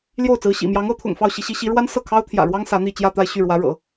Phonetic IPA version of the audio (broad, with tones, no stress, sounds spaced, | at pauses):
l j o˥˩ ʊ̯ t͡s ɹ̩˧˥ ɕ ḭ˨˩ m j ɑ˧˥ ŋ ɤ˧˥ t̪ʰ ʊ̰˨˩ ŋ f ɑ˥˩ ʊ̯ ɕ i˧˥ ɕ i˧˥ ɕ i˧˥ ɻ w a˥ n s ɤ˥˩ kʰ ɑ˥ ʊ̯ t̪ʰ j ä̰˨˩ ɻ w ɑ˥ ŋ s ä˧˥ n̪ i˥˧ t͡ɕ j ä˥˧ t̪ a˥˧ ɪ̯ ɕ y˥˩ ɻ w ä˧˥ ɻ ɤ̰˨˩˦